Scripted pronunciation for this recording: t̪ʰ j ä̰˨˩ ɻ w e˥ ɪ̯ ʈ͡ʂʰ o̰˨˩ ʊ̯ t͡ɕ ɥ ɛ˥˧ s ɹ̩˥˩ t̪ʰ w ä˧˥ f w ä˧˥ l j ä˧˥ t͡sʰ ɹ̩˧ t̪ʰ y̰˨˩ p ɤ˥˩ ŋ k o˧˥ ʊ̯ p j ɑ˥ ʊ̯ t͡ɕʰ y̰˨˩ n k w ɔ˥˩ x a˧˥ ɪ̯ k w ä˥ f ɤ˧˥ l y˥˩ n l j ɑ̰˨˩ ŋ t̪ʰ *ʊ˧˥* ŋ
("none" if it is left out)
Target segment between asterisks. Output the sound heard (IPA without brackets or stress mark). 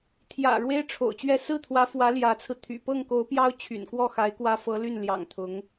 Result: ʊ˧˥